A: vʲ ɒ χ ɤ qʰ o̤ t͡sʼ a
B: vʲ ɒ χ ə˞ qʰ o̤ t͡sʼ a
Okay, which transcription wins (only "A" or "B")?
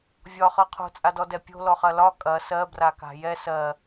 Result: A